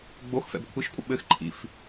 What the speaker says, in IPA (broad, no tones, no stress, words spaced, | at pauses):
ɡ͡box fɛ̰bkʷʰiʃkʷʼɪ ɓɘx ǃʰḭf